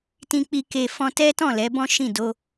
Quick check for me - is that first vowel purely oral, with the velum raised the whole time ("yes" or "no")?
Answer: no